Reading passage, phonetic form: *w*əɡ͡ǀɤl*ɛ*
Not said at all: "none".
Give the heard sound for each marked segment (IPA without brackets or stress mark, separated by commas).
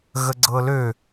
ɣ, ø